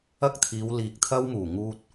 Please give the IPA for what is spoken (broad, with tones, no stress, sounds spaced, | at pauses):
ɐ˥ k̚ t̪ʰ iː˨˧ w l iː˨ k̚ t̪ʰ ɐ˥ w m uː˨˩ ŋ uː˧ t̚